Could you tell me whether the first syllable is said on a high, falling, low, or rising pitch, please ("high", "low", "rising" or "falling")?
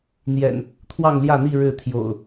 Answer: low